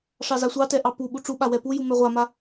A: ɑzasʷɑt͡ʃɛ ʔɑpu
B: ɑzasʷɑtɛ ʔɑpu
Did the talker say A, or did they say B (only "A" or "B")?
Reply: B